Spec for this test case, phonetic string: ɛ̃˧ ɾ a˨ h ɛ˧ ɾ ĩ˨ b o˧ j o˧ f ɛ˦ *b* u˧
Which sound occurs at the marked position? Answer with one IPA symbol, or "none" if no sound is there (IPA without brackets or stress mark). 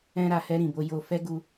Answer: ɡ